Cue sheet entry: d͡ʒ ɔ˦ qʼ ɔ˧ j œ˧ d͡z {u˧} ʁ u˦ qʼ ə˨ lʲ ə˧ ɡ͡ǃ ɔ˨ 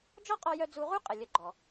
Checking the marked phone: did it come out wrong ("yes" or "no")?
no